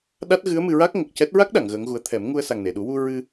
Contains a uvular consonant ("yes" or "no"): no